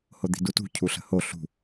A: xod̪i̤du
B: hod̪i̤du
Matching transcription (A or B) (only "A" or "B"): B